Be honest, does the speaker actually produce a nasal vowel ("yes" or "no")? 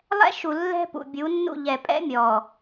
no